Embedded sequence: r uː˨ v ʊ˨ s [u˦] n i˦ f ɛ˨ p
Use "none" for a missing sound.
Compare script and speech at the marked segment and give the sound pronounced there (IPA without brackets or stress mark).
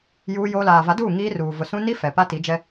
ũ˦